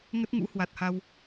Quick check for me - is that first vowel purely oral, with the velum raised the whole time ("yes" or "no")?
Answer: yes